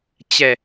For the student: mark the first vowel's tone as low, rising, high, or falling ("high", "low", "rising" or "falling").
low